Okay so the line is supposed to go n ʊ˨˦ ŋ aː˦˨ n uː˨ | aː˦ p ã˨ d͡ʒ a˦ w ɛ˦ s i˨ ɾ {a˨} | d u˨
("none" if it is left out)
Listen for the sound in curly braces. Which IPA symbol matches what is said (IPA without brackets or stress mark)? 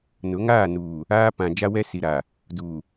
a˨